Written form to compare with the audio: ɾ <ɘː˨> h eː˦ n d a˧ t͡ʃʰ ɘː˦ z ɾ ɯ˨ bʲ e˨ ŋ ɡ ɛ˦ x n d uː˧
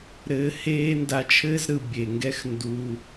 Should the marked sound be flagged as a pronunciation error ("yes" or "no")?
yes